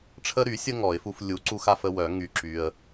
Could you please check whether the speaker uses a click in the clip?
yes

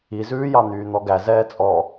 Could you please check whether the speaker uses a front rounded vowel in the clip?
yes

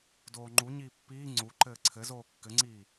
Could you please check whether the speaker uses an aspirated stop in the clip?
yes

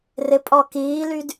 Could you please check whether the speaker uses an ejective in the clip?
yes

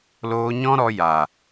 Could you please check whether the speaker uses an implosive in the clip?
no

